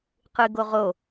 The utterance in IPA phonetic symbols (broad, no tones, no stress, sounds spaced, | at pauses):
q ɨ ɡ o ʁ o